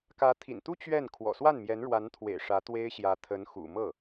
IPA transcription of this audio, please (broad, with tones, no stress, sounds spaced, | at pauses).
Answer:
k ä˧˥ t̪ʰ ḭ˨˩ n t̪ u˥ t͡ɕ ɥ ɛ˥˩ n kʰ w ɔ̰˨˩ s w a˥˩ n m j ɛ˧˥ n ɻ w a˧˥ n t̪ʰ w ḛ˨˩ ɪ̯ ʂ ä˧˥ t̪ w e˥ ɪ̯ ɕ j ä˧˥ t̪ʰ ə˧˥ n x ṵ˨˩ m ɤ˥˩